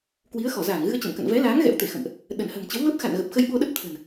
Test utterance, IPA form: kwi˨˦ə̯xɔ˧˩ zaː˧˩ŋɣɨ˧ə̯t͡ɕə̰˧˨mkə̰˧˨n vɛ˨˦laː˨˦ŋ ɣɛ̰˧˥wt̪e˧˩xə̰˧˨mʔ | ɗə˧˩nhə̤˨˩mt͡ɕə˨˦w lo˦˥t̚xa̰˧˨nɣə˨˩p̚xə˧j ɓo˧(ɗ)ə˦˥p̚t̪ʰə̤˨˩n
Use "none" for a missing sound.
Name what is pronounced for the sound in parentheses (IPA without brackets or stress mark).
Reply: ɗ